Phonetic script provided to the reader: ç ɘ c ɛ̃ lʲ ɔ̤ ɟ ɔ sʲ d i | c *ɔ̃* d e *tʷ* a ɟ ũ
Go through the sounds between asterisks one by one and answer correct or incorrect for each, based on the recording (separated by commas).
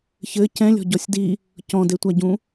correct, correct